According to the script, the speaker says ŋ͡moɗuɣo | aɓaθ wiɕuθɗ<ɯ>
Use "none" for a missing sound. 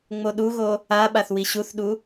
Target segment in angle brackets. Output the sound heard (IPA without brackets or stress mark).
u